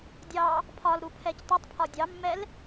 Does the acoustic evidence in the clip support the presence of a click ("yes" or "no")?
no